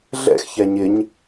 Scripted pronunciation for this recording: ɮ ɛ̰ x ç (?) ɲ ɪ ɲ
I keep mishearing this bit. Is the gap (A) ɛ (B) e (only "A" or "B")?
A